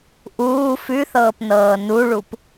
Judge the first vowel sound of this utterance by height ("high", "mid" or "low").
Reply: high